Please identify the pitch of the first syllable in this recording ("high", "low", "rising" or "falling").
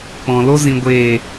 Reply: low